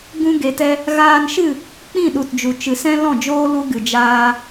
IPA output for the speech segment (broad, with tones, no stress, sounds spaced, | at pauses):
ɡ ũ˧ ɡ e˨ t ɛ˧ | ɣ aː˧ n ʃ ɨ˦˨ | k͡p ĩ˦˨ ɗ u˨ t d͡ʒ u˨ t͡ʃ ɨ˨ s ɛ̃˦ l ɔ̃˦˨ d͡ʒ oː˦ l u˧ ɡ ɨ˨ d͡ʒ aː˧